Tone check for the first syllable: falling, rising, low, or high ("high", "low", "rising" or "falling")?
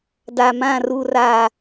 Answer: low